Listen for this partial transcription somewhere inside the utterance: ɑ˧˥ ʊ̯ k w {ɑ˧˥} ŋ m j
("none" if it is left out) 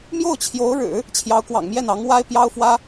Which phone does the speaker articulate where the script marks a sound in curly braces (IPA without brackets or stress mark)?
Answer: ɑ̰˨˩